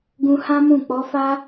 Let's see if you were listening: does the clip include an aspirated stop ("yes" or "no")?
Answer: no